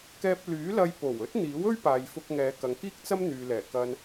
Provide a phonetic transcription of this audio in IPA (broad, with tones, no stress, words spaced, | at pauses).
kɛː˧p̚lyː˨˥lɐ˧j po˨˩wɵ˥t̚n̪iː˨˥w ɵ˥ɥpaː˨jfʊ˧k̚ ŋɛː˨˧kɐ˨ŋkiː˥k̚t͡sɐ˥m n̪yː˨lɛː˨˩ kɐ˧n